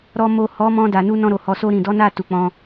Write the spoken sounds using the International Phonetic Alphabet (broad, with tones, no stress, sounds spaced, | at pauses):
ɾ ɔ˨ m o˨ h ɔ˨˦ m ɔ̃˧ d a˨ n u˧ n ɔ̃˧ ɾ o˨ h ɔ˨ s o˧ ɾ ĩ˨ d ɔ˨˦ n a˦˨ t u˨ k͡p ɔ̃˧